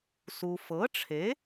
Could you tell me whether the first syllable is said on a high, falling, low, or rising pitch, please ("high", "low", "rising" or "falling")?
low